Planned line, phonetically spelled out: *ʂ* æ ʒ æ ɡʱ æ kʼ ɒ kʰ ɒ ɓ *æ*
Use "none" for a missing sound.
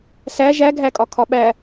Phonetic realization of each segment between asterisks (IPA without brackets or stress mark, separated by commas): s, æ